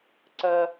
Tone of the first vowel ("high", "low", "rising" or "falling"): high